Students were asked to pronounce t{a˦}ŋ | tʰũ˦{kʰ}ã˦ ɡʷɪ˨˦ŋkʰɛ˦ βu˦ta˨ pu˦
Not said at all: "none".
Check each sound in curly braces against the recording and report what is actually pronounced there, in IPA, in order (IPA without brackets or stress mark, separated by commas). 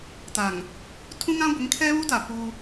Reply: a˨, ŋ